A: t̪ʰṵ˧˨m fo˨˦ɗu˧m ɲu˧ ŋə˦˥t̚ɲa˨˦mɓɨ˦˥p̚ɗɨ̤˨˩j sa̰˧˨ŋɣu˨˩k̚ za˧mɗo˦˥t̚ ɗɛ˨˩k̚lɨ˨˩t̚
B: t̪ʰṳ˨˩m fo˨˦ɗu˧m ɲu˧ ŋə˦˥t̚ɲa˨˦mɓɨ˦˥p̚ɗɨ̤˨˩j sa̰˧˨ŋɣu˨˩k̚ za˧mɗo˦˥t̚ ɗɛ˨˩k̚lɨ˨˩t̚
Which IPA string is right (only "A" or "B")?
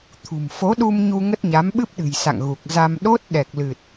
B